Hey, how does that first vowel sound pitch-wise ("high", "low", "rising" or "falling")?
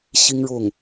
high